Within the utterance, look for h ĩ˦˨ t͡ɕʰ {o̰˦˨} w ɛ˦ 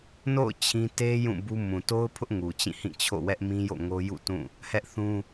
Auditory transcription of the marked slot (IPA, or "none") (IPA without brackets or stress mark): o̰˦˨